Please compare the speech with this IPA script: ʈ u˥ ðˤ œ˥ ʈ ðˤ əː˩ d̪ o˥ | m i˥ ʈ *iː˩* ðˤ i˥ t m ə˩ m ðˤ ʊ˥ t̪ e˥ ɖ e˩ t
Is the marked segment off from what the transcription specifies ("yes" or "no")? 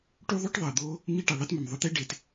yes